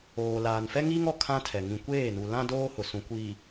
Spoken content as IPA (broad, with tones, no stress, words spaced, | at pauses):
oː˨laː˨n fɛ˦ŋiː˦ŋɔ˨ kʰã˦tʰɛ˨ ŋĩ˨kʷeː˦˨nu˨ lã˦ doː˦hʊ˨ sũ˨kʷiː˨